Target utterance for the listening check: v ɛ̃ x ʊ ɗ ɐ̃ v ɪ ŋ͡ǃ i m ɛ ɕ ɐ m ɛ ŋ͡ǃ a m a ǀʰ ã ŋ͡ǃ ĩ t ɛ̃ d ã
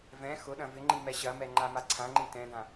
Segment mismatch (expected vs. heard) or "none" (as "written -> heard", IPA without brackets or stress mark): none